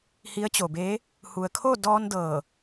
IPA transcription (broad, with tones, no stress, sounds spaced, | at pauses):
h i˧˥ ə̯ t͡ɕ o˩ b e˧˥ | h u˩ ə̯ kʰ o˥˨ d ɔː˧ n d ɤː˧˩